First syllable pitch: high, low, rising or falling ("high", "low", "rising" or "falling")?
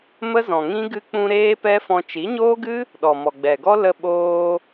high